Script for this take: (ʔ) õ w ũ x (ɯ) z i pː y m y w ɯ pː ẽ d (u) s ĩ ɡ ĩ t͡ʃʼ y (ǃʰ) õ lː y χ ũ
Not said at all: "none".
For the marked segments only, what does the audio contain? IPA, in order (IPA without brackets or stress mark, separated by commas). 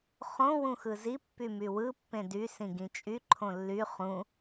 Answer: χ, ɯ, y, ǃʰ